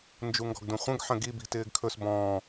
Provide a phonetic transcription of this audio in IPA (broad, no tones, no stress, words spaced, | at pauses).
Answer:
nd͡ʒuŋɡɔ̤ɡdũχʷə̃ɡ ħə̃ɡi bi̤tɪːɡkʰɵs bɔ̃ː